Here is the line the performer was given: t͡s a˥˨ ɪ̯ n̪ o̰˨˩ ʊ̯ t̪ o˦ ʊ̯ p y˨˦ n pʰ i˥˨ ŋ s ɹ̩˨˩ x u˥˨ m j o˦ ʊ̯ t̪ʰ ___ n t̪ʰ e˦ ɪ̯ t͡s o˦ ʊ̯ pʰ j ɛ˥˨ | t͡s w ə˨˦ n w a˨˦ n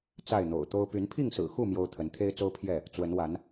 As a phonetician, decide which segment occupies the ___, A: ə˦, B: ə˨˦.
B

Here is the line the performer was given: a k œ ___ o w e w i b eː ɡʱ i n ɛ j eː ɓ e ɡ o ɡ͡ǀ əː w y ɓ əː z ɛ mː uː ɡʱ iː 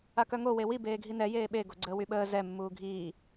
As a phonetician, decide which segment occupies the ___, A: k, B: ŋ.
B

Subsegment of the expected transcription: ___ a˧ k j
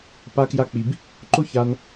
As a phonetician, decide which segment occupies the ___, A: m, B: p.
B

